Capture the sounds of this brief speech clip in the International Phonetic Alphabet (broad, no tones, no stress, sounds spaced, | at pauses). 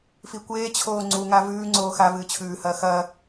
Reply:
f i kʷ eː t͡ɕʰ oː ŋ͡ǀ u ŋ a v ʉː ŋ͡ǀ oː x a v ɨː t͡ɕʰ ʉː h ɐː x ɐː